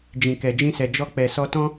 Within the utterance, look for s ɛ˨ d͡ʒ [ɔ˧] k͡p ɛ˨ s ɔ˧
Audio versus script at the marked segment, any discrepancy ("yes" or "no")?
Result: no